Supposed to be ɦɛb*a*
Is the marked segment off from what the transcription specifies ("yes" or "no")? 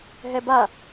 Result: no